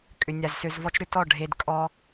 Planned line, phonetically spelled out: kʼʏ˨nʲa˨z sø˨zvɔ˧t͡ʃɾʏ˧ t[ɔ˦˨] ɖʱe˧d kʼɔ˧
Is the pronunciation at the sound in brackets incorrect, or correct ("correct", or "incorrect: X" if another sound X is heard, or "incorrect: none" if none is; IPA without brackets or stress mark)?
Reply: correct